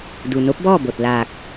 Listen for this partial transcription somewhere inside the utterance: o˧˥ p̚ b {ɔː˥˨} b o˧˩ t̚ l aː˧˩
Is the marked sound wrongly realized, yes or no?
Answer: no